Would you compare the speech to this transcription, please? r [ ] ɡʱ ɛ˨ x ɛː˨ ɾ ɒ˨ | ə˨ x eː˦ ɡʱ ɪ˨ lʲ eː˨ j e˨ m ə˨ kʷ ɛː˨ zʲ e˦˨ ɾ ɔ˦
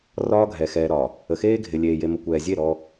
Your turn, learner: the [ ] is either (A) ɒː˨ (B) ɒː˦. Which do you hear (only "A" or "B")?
B